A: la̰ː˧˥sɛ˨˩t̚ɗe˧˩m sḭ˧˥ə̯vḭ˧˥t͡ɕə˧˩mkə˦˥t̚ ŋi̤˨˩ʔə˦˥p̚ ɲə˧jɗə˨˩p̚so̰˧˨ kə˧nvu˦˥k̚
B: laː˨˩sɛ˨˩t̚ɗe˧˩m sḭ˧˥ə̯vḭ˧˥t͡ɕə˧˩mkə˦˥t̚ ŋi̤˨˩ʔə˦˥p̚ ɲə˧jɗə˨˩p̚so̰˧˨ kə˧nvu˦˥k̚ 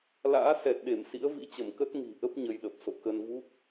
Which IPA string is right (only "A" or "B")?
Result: A